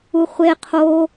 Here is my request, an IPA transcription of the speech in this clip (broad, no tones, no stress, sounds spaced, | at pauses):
u χʷ e qʰ o